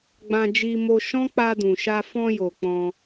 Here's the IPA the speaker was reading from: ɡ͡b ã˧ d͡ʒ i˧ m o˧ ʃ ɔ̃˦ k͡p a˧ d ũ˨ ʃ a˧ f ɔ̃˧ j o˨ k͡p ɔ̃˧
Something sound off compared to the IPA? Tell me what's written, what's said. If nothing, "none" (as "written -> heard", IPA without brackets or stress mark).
none